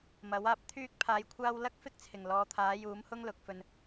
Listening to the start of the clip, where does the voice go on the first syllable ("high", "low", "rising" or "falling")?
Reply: rising